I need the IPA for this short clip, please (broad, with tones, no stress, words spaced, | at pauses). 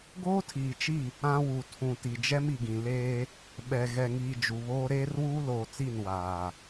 ɡoː˦tʰiː˨t͡ʃi˦˨ | ã˦wu˨tʰũ˨ ti˨d͡ʒɛ˦mi˨ɡĩ˨ leː˦ | ɓɛ˨ ɣɛ˨ŋiː˨ d͡ʒu˨βoː˦ ɾeː˦rwuː˦loː˨t͡si˦˨n waː˨